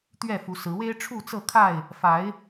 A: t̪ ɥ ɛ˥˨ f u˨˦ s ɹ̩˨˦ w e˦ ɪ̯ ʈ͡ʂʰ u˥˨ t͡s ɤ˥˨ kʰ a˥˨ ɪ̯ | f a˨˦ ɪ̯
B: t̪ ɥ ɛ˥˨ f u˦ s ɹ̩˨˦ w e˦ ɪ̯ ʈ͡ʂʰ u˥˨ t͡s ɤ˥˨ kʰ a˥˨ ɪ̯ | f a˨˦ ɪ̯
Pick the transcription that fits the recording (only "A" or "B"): A